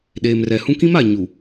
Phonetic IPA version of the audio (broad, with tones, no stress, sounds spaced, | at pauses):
ɗ eː˨ m r ɛ˨ h ũ˦ k ĩ˦ m a˨ ɲ u˨